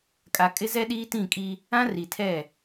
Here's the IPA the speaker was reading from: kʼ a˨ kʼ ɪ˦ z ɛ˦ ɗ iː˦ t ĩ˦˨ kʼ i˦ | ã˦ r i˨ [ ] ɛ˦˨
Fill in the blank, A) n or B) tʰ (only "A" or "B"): B